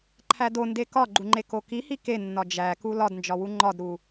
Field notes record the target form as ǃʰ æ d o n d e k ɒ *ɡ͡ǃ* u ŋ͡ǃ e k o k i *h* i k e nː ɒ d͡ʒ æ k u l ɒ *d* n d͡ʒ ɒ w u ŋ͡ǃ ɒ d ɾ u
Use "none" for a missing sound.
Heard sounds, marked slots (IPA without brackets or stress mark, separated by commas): ɡ͡ǃ, h, d